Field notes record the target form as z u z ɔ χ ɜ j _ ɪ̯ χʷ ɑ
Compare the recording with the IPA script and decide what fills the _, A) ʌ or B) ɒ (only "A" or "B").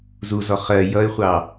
A